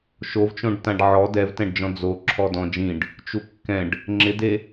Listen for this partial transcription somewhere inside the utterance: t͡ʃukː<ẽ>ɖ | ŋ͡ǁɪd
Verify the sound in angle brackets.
incorrect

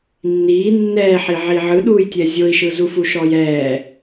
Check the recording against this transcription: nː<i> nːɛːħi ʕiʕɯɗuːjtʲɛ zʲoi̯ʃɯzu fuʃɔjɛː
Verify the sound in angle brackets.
incorrect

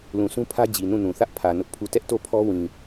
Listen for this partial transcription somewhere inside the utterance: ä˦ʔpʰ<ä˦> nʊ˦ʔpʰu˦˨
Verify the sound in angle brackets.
incorrect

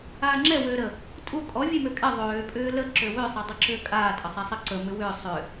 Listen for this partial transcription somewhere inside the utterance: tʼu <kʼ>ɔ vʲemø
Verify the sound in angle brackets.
correct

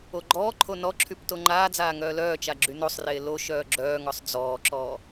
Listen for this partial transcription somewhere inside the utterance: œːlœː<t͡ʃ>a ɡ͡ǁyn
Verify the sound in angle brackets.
correct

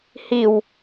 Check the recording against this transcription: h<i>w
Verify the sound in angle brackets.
correct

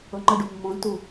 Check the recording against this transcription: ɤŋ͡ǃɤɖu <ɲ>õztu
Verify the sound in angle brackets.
incorrect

